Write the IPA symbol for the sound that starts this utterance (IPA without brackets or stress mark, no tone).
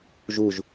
ʒ